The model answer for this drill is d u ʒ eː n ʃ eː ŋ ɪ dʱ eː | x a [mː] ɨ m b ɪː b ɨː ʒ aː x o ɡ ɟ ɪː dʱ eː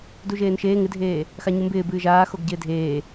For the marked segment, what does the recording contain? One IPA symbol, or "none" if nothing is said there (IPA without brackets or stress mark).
ɲ